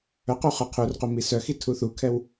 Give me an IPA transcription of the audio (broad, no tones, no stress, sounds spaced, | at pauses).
œ q u χ œ qʰ u r q u m i s œ x i tʰ u θ u kʰ ɛ w